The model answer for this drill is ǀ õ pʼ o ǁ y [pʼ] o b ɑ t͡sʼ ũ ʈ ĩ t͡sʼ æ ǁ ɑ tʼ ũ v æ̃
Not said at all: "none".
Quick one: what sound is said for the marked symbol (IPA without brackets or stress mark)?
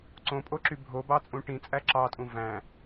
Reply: bʱ